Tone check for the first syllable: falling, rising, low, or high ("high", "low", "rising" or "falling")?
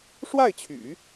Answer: falling